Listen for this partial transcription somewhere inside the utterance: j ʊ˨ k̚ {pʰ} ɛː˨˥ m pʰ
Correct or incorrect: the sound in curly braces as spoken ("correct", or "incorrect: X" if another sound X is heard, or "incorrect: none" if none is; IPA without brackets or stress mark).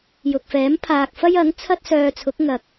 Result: incorrect: f